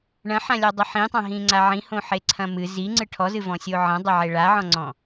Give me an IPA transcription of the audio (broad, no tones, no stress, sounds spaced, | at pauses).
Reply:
ɳ ɐ̃ ħ ã lʲ ɔ dˤ ɘ ħ ĩ tˤ ã ɦ ĩ ŋ͡ǀ a ʕ ĩ h õ ħ e ǀʰ ɐ̃ m ɨ z i ŋ͡ǀ ɨ ʈʰ ɔ z ɨ v ɔ̃ sʲ o ʕ ɐ̃ dˤ e ʕ e ɭ a ʕ ɔ̃ ŋ͡ǀ ɔ̃